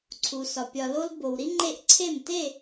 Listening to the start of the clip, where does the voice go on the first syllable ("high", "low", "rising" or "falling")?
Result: low